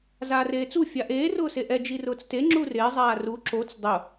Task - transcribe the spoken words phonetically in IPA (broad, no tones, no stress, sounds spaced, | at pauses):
z aː r eː t͡s u fʲ a ʔ eː r ʊː s e ʔ ɛ d͡ʒ i r ʊː t͡s t e ŋ͡ǁ u r ɪː zˤ aː r u ǁ o t͡s dˤ ʊ